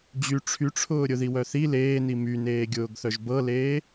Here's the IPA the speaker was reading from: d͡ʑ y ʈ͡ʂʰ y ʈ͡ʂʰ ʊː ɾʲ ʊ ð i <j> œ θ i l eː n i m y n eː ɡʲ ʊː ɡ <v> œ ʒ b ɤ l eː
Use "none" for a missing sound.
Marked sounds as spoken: w, θ

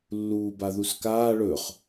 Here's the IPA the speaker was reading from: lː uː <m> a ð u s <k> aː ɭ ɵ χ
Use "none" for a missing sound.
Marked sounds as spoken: b, k

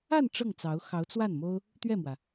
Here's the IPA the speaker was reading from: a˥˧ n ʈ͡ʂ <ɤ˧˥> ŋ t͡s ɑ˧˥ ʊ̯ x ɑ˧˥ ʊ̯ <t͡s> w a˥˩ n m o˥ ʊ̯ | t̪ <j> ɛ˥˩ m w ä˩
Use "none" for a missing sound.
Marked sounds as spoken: ɤ˥˩, t͡s, ɥ

